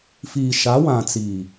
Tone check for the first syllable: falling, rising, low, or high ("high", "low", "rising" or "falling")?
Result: low